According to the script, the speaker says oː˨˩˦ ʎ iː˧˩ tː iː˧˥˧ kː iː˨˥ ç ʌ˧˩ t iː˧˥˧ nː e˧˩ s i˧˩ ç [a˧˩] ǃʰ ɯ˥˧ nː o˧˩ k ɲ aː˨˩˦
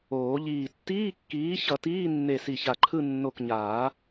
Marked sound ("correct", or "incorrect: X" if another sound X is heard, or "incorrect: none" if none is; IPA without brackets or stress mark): correct